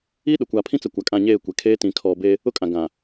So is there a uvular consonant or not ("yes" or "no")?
no